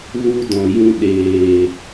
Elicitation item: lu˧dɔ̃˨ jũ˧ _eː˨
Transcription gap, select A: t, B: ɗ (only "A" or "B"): B